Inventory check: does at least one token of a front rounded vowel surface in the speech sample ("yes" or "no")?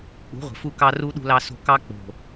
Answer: no